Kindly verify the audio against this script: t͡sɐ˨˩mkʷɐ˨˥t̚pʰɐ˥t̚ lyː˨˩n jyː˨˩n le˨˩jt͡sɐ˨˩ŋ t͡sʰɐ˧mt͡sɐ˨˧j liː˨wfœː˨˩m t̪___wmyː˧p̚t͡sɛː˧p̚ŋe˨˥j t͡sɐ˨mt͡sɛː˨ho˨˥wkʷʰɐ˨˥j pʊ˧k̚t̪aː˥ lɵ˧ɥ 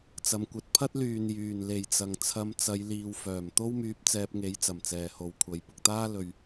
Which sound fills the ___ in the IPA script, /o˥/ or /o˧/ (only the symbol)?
o˥